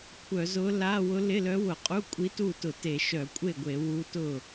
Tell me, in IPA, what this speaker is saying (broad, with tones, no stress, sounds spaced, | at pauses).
kʷʰ œ˧˩˧ z ʊ˧˥ l a˧˥˧ w ʊ˧˥ l ɪ˧˥˧ l œ˧˥ w ʊ˧˩˧ qʼ u˧˥˧ kʷʼ i˧˥ t u˥˩ t ʊ˧˩˧ t e˧˩˧ ʃ œ˧˩˧ kʷʼ e˥˩ ɡʷ e˧˩˧ w u˧˥ t ʊ˥˩